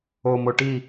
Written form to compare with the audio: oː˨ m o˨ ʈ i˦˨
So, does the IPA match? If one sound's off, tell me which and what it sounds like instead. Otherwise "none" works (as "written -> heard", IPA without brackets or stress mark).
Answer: none